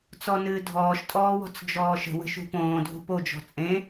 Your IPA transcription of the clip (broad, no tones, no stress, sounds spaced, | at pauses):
t͡s ɔ n ɨː dʱ ɔː ʃ tʼ ɔː w ɔ̤ t͡s d͡ʒ ɔː ʃ ə̤ w ə̤ ʃ ṳ p õː dʱ ṳ p o d͡ʒ ɔ̤ t͡sʼ ẽ